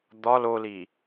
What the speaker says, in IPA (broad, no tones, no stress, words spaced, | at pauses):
d̪ɒl oli